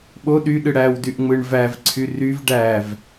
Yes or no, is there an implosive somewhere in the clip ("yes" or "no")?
yes